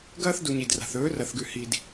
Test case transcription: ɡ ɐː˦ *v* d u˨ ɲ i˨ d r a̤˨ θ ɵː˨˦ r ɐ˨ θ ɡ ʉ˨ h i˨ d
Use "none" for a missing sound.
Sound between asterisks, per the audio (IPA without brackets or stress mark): θ